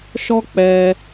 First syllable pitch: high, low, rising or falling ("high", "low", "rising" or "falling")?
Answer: high